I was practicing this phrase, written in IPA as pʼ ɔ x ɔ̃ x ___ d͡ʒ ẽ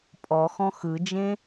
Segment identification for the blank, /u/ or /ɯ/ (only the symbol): ɯ